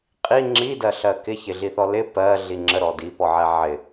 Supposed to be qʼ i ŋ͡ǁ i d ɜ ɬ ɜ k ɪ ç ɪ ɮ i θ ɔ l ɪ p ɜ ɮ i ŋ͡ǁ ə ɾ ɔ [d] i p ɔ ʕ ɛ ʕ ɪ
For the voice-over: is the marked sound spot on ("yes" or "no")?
yes